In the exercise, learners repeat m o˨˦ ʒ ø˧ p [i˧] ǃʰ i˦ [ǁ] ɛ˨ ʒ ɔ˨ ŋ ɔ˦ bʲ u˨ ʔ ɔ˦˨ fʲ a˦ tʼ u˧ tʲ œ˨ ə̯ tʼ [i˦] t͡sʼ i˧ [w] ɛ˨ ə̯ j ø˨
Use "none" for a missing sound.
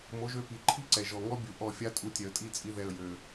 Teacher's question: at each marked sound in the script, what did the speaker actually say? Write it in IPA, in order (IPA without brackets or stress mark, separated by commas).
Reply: i˨, ǀ, i˦˨, ð